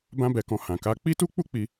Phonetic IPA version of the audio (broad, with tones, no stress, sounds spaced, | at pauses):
b ã˦ b ɛ˧ k ɔ̃˧ h ã˨ k a˧ k͡p i˦ t u˦ k͡p u˦ k͡p i˧